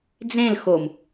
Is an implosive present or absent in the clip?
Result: absent